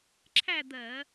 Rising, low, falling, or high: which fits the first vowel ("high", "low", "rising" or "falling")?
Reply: falling